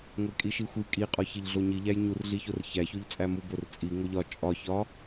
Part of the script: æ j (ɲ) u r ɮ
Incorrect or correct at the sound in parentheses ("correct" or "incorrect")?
correct